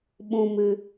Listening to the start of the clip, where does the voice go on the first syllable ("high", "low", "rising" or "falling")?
low